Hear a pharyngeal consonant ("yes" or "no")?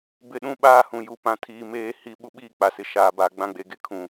no